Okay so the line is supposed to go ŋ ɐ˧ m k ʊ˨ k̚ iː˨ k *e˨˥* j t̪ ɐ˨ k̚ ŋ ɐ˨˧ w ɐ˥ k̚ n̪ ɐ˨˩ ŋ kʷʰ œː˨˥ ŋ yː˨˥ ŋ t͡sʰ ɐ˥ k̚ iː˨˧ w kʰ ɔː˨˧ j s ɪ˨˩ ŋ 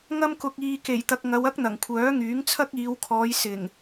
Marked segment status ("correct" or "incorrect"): incorrect